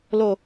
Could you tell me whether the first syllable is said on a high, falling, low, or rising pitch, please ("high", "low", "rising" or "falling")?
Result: low